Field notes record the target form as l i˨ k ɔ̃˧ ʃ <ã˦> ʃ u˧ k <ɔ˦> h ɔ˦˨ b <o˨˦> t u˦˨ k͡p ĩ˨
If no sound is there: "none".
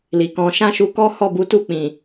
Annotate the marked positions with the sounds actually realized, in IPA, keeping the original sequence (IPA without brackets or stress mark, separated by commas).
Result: ã˦, ɔ˦, u˨˦